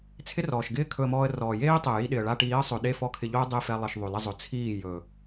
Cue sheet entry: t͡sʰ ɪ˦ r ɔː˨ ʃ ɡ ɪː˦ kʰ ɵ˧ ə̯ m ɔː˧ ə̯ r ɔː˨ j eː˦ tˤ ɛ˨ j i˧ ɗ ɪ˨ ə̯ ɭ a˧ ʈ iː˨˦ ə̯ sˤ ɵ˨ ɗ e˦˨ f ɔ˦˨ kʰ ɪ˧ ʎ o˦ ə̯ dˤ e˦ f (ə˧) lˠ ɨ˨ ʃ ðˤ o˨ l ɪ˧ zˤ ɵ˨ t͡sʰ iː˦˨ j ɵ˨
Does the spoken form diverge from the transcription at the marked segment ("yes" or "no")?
yes